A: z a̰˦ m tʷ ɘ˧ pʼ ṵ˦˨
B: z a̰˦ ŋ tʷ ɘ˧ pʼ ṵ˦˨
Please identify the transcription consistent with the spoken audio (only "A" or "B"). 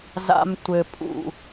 A